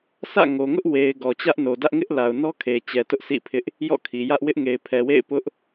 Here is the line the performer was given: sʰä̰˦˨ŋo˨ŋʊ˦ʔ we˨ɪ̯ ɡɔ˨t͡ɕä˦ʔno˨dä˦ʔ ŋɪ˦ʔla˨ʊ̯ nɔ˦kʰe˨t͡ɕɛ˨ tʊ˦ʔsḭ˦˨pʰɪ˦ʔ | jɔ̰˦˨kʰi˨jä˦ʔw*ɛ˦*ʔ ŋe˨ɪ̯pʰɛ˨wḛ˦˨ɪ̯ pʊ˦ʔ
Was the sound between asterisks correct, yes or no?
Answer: no